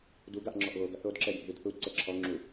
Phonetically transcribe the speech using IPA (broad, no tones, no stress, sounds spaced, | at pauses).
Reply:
d u ɡ a ʔ ŋ͡ǁ ɔ ʔ ɣ o ɡ ɐ θ o d ǁ ɛ ɾʲ ɨ ʔ ʒ ɨ d θ u d ǀ ɛ ǁʰ ɔ ŋ͡ǁ u